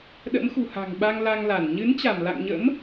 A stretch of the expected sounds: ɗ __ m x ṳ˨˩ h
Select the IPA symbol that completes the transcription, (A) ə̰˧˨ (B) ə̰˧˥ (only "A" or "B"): B